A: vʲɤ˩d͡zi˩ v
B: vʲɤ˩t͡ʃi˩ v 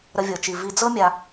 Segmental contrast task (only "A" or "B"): B